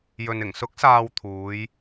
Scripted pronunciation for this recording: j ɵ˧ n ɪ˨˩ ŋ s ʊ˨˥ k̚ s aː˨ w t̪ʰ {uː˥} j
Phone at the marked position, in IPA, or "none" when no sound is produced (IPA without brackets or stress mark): uː˨˧